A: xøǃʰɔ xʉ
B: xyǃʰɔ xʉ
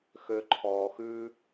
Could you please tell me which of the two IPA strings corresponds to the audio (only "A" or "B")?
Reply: A